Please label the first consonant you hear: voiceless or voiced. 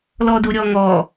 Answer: voiced